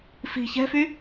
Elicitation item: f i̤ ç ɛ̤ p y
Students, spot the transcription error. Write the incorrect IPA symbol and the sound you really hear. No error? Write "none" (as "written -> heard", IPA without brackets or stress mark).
p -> f